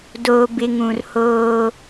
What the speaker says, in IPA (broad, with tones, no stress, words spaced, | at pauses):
doː˨ bɪ˦ ŋũ˨rhoː˦